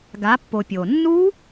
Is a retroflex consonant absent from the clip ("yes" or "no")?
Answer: yes